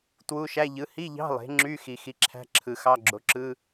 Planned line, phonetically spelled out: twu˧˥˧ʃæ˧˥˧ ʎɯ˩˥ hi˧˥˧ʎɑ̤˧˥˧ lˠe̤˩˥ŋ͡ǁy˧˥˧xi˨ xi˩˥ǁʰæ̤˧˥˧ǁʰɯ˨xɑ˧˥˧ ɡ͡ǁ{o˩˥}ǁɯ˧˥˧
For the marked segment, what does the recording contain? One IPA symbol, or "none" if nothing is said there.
o˩˥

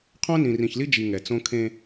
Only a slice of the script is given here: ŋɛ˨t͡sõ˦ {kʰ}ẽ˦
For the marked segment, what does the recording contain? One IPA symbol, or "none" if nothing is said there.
kʰ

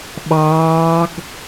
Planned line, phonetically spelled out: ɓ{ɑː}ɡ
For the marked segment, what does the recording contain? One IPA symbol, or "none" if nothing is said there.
ɑː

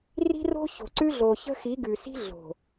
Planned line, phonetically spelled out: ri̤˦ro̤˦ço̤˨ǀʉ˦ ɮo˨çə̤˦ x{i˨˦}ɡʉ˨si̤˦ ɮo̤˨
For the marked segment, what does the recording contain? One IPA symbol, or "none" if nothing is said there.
i˨˦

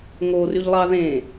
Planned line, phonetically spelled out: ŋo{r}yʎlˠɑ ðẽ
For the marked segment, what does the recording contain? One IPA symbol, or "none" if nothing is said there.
r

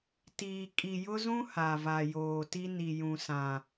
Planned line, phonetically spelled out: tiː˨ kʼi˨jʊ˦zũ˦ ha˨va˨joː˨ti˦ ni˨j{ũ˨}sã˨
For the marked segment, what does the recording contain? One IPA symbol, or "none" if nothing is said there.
ũ˨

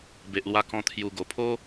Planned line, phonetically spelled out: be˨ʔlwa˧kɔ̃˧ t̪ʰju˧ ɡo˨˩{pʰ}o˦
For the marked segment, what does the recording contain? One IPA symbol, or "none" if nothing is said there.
pʰ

